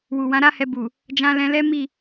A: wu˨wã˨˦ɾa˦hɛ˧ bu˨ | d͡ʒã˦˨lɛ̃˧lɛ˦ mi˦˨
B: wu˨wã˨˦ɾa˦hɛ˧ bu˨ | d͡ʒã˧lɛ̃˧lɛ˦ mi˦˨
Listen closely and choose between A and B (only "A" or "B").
B